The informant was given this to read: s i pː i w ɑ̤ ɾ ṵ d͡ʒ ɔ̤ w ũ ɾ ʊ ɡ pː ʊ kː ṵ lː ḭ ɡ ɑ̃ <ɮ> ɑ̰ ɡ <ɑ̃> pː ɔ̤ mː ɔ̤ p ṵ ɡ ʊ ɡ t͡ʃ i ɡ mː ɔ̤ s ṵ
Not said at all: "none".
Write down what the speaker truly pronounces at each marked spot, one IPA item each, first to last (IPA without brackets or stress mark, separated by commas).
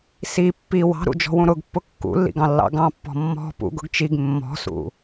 lː, ɑ̃